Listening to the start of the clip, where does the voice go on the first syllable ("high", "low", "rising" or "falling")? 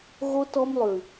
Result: high